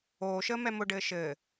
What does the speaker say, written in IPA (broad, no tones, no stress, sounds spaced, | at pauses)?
oː ʃ əː m ɛ m ʊ ɖ ɘː ʃ ɘː